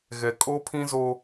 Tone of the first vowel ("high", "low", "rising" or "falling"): low